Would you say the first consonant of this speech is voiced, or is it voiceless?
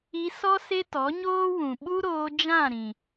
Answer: voiceless